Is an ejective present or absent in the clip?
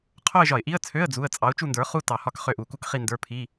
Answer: present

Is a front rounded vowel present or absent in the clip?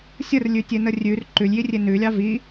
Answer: absent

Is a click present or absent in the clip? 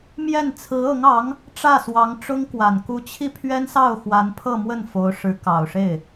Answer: absent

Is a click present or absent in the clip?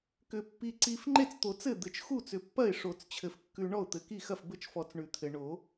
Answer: present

